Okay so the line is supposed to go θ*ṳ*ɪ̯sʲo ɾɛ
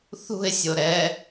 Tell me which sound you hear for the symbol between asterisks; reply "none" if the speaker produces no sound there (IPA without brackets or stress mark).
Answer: ṳ